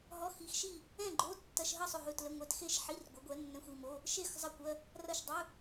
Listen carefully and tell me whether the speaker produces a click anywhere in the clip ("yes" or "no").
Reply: yes